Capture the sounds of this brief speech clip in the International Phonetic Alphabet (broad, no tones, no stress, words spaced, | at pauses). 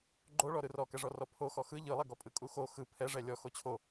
ɡ͡ǃoɭɔ ɾɯrɔkɛʐɔ rɔpʰoxɔ xɯ ʎɯlˠɛɡɔpʼɯ kʼuxo xɯ pʰɛʐɛ lʲɔ xot͡ɕʰo